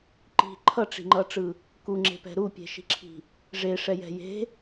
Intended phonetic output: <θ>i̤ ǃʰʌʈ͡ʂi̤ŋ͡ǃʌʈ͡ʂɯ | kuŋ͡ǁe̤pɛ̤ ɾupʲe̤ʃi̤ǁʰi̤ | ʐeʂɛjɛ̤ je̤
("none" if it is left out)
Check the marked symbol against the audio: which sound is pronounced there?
ǃ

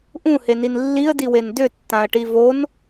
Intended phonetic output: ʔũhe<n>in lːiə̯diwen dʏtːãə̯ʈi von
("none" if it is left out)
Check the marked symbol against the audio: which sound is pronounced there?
n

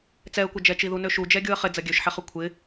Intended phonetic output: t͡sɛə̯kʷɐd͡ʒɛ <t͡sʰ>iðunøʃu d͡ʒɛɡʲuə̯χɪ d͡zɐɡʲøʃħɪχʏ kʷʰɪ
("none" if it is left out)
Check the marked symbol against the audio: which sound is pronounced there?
t͡ʃ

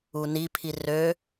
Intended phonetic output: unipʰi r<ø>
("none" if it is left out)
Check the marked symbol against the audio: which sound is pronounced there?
ø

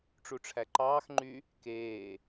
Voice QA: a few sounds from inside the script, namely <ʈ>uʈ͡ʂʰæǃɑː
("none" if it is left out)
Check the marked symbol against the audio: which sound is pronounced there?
ʈ͡ʂ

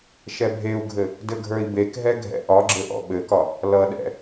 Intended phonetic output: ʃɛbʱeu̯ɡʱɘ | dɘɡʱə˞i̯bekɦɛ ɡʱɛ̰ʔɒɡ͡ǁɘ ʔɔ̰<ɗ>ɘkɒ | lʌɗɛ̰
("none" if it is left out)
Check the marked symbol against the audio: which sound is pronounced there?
ɓ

